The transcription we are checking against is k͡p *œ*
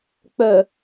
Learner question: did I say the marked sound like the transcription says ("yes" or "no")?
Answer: yes